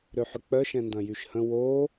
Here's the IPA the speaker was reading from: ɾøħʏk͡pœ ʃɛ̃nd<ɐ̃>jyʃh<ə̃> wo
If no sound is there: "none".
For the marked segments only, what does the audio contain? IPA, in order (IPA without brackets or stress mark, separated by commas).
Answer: ɐ̃, ə̃